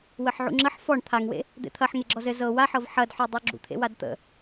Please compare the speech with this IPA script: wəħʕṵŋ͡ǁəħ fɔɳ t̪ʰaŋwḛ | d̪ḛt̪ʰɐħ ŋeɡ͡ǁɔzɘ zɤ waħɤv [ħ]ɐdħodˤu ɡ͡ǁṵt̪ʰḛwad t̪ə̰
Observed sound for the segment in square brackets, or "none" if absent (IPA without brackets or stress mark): ħ